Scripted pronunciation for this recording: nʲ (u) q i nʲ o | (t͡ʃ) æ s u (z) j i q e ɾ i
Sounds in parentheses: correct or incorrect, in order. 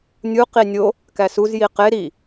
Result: correct, incorrect, correct

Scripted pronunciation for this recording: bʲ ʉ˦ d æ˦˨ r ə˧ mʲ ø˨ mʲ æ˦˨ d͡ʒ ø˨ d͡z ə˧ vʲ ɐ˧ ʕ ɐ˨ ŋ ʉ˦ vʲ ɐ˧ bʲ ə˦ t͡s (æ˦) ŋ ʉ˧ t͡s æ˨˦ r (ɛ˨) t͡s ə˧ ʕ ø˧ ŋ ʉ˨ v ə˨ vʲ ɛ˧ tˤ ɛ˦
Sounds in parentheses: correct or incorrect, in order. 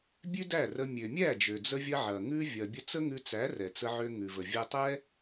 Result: incorrect, correct

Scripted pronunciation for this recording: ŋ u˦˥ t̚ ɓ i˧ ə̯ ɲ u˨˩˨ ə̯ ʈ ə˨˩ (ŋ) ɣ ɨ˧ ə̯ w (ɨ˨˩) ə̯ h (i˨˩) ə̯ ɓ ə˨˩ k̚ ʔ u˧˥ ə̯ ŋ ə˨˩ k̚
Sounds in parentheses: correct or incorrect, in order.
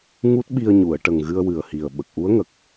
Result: correct, correct, correct

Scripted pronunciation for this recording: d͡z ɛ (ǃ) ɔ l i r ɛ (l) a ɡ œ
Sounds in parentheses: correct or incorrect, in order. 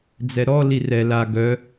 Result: incorrect, correct

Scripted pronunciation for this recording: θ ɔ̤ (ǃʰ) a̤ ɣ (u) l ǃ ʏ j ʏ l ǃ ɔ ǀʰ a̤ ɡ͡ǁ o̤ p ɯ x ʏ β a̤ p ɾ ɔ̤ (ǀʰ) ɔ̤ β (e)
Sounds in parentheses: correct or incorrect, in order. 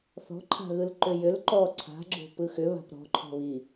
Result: correct, incorrect, incorrect, incorrect

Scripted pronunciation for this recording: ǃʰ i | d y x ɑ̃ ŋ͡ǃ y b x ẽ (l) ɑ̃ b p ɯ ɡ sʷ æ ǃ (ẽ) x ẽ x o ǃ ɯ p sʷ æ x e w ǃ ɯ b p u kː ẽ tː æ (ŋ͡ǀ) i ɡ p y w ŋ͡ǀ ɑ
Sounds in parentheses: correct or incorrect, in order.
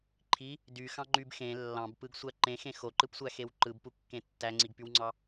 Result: incorrect, correct, correct

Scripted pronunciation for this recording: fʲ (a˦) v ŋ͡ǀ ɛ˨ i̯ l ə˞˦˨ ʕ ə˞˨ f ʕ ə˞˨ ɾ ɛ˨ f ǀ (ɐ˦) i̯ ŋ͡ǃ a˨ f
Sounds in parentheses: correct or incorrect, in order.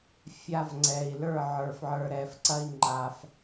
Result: correct, correct

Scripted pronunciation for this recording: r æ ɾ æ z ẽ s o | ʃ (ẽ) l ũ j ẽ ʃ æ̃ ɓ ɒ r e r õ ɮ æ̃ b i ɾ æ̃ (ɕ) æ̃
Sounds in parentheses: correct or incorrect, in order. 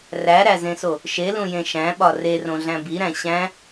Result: incorrect, correct

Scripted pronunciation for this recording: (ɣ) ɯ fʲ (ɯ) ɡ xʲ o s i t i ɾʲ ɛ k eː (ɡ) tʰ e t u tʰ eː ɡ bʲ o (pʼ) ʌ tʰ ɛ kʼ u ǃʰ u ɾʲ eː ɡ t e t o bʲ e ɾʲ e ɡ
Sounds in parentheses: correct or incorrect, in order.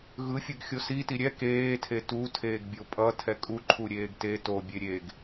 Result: correct, correct, incorrect, correct

